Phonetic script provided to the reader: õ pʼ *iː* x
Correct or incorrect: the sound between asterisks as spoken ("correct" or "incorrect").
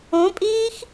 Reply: correct